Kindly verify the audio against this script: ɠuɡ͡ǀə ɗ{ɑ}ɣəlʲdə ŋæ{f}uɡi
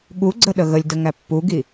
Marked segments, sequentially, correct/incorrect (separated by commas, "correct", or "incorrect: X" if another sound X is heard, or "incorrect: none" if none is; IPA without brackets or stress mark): incorrect: ə, incorrect: pː